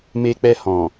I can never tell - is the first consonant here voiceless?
no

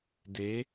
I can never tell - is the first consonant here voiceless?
no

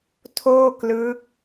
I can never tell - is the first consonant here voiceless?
yes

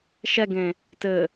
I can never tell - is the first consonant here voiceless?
yes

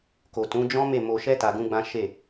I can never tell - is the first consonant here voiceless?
yes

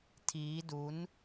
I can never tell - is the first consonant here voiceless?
yes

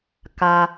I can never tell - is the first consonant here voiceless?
yes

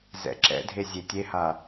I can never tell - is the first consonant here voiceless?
no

